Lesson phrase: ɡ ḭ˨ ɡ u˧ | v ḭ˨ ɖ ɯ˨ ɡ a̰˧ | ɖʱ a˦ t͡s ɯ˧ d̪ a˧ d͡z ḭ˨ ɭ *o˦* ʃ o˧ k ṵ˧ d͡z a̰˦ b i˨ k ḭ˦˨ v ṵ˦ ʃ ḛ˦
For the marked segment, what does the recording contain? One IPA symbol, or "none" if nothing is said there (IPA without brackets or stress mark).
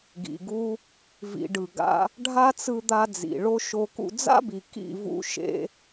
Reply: o˦